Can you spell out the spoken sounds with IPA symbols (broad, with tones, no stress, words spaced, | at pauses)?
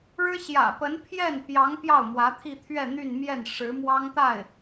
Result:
ɻɻ̩˥ ɕjä̰˨˩pə˧˥n pʰjɛ˥˩npjɑ˧˥ŋ pjɑ˥˩ʊ̯mwä˧˥t̪ʰi˥˧t̪ʰɥɛ˥˧ n̪y˥˧nmjɛ˥˩n ʂɻ̩˧˥mwɑ˥ŋt̪a˥˩ɪ̯